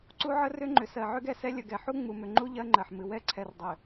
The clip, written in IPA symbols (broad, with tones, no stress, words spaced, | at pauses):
ǀu˦ʕə˦rʏ˦ŋ͡ǃʏ˨ sɜ˨ʕʏ˦ɡɛ˨sɛ˦ lʲə˨ɡɛ˨ ħu˦ŋ͡mu˨mʏ˨ŋ͡ǃu˦ ʎɜ˦ŋ͡ǃɜ˨ħmɨ˨ wɛ˦˨ǀʰɛ˨rdˤʏ˨